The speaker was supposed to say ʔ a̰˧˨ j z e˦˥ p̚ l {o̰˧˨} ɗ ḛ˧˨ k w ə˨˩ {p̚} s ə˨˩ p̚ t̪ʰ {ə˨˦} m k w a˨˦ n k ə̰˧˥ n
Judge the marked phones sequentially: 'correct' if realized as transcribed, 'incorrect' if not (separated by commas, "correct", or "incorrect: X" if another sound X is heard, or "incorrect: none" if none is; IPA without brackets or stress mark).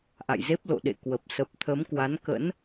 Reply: correct, correct, correct